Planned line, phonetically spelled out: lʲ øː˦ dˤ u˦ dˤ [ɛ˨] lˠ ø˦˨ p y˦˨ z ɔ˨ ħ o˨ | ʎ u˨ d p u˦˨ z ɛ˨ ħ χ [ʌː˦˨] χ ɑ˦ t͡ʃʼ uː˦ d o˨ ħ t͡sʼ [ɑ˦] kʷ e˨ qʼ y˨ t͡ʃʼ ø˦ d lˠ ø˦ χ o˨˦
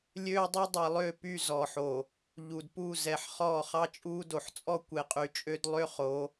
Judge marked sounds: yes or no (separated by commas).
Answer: yes, no, no